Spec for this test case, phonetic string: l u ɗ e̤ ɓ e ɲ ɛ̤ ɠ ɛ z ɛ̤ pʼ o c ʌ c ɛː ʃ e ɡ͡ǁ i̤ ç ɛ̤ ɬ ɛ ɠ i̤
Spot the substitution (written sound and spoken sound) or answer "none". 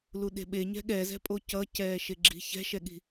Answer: ɬ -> ʃ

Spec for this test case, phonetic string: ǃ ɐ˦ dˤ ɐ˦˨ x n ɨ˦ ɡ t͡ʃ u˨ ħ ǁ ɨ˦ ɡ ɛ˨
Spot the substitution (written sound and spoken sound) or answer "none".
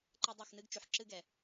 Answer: none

